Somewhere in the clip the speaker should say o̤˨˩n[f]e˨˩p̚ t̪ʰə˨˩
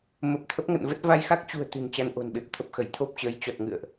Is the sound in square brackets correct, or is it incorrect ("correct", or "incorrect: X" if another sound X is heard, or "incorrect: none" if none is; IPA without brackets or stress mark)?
incorrect: ɓ